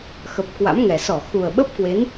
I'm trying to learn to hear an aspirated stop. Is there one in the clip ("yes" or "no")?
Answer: no